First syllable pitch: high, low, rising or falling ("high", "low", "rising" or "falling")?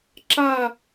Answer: falling